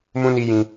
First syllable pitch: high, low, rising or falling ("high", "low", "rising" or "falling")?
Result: high